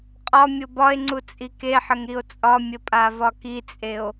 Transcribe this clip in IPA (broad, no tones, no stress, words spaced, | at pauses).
qʼɒ mʲobɒe̯ŋ͡ǀu t͡sʼikeħəŋ ɾio̯t͡sʼɒmʲə pʼavɒkit͡sʼeo̯